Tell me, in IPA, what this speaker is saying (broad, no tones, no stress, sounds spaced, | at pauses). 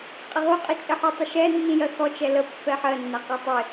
qʼ ɪ ʁ u qʼ i t͡ʃʼ ə ħ u tˤ ə ʃ ɛ nː ĩ j ɜ x ɔ t͡ʃ ɛ l ə pː ɛ ħ ɜ nː æ q ɛ tˤ ɪ